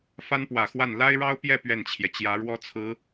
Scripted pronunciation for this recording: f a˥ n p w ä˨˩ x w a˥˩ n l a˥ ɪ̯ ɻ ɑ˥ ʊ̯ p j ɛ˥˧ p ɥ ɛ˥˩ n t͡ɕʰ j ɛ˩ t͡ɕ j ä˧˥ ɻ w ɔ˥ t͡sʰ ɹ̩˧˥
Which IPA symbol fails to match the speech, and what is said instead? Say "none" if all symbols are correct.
none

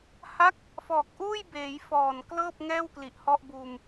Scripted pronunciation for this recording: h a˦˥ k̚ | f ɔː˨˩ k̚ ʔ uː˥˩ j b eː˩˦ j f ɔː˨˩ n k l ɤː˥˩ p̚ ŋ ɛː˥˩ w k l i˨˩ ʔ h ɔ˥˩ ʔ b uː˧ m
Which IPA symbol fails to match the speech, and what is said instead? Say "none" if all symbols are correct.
none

